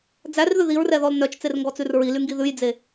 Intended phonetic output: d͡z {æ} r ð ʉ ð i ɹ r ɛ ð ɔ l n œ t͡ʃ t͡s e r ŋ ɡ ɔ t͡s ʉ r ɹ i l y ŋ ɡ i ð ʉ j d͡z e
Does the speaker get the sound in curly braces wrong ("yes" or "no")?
no